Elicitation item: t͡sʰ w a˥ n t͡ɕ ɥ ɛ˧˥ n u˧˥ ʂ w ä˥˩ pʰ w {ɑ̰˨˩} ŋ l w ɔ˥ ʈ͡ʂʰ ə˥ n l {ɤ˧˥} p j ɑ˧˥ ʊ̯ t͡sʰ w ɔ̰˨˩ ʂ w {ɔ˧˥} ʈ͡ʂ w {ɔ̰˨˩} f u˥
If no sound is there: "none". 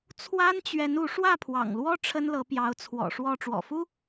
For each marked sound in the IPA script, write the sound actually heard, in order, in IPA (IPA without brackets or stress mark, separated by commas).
ɑ̰˨˩, ɤ˧˥, ɔ˥˩, ɔ̰˨˩